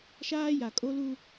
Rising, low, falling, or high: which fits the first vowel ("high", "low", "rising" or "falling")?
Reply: high